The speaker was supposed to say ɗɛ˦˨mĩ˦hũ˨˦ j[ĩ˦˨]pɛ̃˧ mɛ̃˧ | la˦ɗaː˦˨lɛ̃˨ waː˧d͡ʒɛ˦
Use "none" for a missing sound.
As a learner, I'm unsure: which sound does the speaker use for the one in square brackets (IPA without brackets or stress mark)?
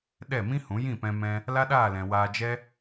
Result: ĩ˦˨